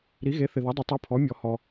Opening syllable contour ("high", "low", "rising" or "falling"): rising